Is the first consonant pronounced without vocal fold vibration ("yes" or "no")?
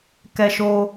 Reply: yes